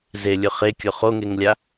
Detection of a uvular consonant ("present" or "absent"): present